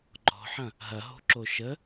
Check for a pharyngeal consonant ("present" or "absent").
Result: present